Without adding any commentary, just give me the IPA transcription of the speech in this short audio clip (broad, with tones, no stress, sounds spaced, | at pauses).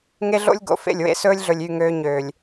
ŋ e˦ ɮ o̰˦ lʲ ɡ o̰˨ f ḛ˦˨ lʲ w ḛ˦ s ɵː˦ lʲ ɮ ɵ˨ lʲ y˦˨ ŋ øː˦ ɲ øː˨ lʲ